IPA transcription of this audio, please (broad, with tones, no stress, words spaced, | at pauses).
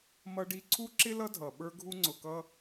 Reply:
mʌ˧ɖi˧ ǀʰu˦ǁɪ˦ lʌ˦dʱʌ˨ ɓə˞˧ɡʱu˧ŋ͡ǀʊ˨kʌ˧